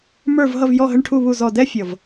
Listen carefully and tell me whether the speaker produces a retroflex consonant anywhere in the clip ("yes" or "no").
yes